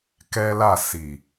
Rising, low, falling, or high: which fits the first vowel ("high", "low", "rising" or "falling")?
high